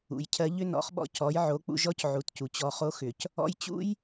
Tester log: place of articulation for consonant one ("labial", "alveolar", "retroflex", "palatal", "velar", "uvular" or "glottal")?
palatal